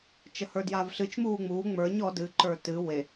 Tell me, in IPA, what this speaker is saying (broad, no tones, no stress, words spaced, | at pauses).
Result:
t͡ʃəhə˞djavɬɨt͡ʃ muːŋ͡muː ŋ͡mə˞ɲ ɔ dɨ ǃə˞tɨ we